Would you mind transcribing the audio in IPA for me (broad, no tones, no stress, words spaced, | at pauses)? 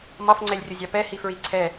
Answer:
mɒfŋ͡ǀɛlʲrʲʊzʲɑ pɛhifɹi ǀʰɛ